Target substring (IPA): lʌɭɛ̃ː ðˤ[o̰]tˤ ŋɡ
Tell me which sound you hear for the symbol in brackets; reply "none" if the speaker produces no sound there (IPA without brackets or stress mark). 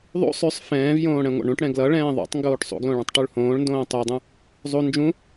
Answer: o̰